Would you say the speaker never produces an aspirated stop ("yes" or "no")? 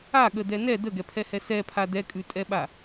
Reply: no